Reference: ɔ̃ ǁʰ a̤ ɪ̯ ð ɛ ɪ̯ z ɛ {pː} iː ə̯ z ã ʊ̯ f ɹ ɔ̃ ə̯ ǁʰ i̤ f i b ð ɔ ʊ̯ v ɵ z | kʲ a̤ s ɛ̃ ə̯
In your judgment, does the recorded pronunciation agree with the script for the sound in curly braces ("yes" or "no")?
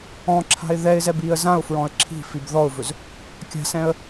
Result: no